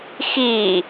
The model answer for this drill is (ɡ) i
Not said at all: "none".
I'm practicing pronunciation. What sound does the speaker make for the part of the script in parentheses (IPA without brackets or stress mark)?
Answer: x